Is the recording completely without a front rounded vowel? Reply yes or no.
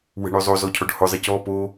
no